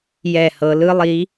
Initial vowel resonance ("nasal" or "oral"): oral